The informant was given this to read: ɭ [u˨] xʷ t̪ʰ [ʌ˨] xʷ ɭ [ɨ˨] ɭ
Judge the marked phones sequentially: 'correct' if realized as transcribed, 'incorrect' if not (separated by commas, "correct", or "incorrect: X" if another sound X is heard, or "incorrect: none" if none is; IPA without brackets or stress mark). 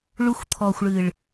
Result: correct, incorrect: ɔ˨, correct